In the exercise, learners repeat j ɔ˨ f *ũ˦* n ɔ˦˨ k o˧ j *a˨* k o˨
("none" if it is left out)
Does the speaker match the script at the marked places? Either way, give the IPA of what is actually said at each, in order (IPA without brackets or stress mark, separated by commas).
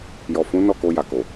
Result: ũ˨˦, a˨